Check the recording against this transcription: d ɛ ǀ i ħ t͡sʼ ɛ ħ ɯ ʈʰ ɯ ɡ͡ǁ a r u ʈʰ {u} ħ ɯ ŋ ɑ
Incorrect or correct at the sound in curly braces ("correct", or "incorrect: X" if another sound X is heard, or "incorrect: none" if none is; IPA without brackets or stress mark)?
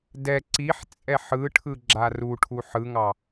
correct